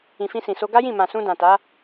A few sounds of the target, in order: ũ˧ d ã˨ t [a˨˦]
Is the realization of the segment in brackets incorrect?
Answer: no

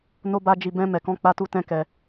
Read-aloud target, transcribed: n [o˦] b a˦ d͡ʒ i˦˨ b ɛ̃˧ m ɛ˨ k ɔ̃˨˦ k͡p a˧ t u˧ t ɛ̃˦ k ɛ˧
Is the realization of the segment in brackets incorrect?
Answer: no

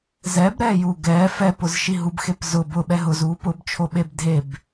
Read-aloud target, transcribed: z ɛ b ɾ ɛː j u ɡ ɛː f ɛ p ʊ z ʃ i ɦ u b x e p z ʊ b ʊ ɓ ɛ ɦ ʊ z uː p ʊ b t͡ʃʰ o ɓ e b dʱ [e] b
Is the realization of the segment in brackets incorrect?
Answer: no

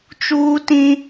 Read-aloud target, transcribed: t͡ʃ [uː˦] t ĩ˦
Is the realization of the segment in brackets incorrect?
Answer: no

